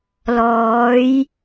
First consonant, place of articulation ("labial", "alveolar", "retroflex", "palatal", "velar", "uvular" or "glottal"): alveolar